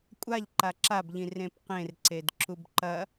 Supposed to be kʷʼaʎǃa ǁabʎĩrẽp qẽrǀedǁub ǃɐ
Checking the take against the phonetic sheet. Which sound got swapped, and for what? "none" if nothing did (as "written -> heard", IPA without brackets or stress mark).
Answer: none